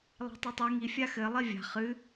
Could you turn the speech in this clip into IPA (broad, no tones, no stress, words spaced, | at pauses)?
lˠa̤tˤɨtˤi ŋi fʲaxɘ lˠivʲa̤ χɨ